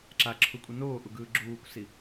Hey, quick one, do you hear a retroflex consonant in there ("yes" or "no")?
no